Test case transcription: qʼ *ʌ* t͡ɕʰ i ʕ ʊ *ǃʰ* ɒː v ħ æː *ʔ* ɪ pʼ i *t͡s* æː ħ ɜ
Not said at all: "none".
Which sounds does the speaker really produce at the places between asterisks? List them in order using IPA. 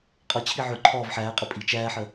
ʌ, ǃʰ, qʼ, t͡ʃ

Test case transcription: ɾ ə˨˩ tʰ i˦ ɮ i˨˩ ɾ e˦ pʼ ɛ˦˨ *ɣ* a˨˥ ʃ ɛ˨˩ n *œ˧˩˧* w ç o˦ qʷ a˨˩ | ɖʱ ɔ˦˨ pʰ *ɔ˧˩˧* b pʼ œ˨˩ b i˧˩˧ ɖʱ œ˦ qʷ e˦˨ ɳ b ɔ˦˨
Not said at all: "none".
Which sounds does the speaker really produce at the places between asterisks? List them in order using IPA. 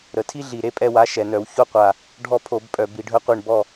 w, œ˧˩˧, o˧˩˧

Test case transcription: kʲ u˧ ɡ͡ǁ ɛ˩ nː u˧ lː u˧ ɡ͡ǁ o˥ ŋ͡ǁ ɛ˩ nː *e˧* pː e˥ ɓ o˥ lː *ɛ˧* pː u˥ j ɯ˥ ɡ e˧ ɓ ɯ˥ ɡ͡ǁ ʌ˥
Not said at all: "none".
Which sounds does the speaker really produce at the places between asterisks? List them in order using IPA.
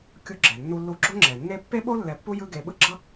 e˥, ɛ˧

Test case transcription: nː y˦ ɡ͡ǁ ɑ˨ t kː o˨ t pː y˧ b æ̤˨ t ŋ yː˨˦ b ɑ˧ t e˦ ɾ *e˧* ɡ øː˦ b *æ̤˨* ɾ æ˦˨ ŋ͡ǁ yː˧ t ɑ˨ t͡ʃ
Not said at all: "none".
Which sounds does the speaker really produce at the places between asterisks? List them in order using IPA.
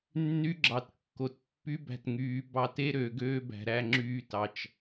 ø˧, æ̤˨

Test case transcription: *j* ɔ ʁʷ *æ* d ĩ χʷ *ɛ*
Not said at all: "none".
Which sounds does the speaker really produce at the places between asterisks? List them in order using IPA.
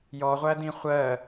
j, æ, ɜ

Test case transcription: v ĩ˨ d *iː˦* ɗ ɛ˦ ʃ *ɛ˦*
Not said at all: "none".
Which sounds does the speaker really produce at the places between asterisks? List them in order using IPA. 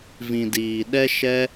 iː˨, ɛ˦

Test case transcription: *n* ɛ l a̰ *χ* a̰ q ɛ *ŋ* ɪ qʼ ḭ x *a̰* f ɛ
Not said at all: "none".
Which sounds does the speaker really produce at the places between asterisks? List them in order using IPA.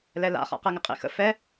l, χ, ŋ, ə̰

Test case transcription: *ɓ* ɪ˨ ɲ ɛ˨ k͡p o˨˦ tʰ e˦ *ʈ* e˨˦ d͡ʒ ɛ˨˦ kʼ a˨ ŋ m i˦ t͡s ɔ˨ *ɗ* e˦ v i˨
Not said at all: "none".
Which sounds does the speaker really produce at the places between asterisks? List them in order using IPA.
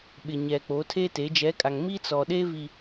ɓ, t, ɗ

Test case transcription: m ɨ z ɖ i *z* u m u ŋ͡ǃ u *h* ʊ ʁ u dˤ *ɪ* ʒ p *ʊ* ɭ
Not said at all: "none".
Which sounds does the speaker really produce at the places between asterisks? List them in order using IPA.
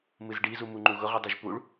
z, ɣ, ɨ, u

